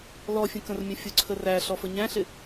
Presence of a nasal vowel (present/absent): present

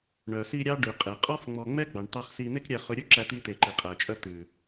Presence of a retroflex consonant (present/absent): present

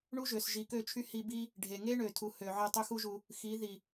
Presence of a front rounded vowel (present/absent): present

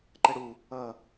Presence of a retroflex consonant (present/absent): present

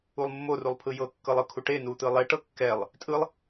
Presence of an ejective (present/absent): present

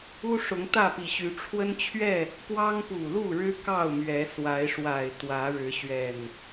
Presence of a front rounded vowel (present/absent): present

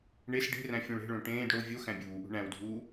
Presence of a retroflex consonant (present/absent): present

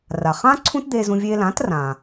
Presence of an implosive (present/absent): absent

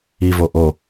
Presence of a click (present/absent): absent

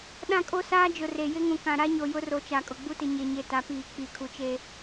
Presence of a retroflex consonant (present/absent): absent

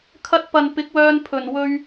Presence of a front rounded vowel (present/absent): present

